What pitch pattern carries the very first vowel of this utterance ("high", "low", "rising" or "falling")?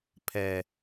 low